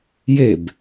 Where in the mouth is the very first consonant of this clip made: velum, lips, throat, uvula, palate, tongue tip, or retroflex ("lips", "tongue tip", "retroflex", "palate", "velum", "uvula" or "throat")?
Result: palate